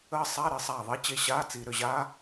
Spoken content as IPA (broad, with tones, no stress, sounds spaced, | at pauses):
əː˦˥ sˤ a˧˥˧ ɾ ɘ˧˩˧ sˤ aː˧˩ ðˤ i˦˥ t͡ɕ e˧˩ ɕ aː˧˥˧ t͡s i˧˩˧ ɾ ʏ˧˩ ʑ aː˦˥